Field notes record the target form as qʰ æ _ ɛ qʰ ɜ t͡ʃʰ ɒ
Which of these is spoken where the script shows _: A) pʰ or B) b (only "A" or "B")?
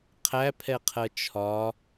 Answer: A